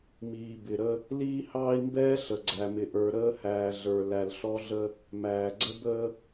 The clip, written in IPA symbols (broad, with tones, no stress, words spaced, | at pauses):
miː˨ bɪ˨ɾə˦ | liː˦hɑː˦i̯mbɛː˦ ɬə˨ɡ͡ǀæ˨mɪ˨ʔə˞˨ ɾəː˦hæː˨ɮə˞˨ læ˨l ɬɔ˦ɮə˦ | mæː˨ɡ͡ǀə˦bəː˦